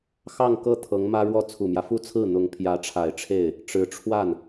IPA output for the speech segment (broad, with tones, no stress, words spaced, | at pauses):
xɑ˥˧ŋkɤ˥˩ t̪ʰɤ˧˥ŋmä˥ɻwɔ˥˩ t͡sʰu˨˩mjä˦fu˥t͡sʰɹ̩˥˩ n̪ʊ˧˥ŋpʰjä˧˥ʈ͡ʂʰa˨˩ɪ̯ʈ͡ʂʰe˥˩ɪ̯ | ʈ͡ʂɻ̩˧˥ ʈ͡ʂʰwa˥˩n